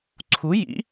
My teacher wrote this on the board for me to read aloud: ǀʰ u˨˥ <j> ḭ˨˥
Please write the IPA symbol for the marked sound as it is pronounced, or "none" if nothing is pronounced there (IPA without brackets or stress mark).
j